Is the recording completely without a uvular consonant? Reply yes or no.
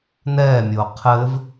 no